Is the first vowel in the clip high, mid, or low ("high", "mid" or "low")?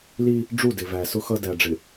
high